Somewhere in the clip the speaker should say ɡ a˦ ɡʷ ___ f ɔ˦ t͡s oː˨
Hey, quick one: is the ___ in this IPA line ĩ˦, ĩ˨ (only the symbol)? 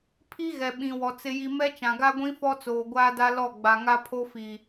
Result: ĩ˦